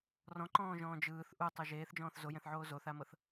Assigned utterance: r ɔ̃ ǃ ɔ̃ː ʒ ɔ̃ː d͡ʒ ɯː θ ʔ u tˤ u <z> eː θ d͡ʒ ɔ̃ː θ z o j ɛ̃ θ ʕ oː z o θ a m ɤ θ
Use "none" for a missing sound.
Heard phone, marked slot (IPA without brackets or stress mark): ʒ